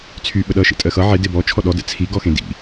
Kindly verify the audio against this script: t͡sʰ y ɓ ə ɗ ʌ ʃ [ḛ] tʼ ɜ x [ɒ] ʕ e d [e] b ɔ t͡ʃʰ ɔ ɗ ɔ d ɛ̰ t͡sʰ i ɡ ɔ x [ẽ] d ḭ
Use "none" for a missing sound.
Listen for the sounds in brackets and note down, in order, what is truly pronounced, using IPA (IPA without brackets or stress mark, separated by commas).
ḛ, ʌ, e, ẽ